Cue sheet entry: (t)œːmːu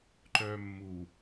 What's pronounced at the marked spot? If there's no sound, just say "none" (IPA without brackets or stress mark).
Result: ǃ